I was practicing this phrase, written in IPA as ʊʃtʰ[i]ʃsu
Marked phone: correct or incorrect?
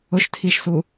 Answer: correct